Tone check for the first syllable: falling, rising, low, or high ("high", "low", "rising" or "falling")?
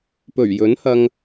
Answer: low